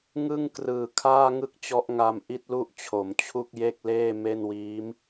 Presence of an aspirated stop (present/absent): present